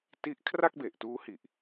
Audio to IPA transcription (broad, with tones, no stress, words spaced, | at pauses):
ti˥˩ʔ kʰra˥˩k̚be˨˩ʔtuː˦˥hi˨˩ʔ